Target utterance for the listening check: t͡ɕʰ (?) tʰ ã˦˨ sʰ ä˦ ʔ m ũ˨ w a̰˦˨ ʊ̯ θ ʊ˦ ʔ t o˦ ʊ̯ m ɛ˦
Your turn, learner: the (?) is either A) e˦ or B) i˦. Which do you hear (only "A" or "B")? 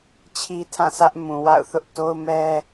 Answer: B